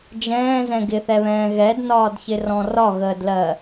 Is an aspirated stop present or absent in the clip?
absent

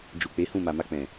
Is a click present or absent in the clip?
absent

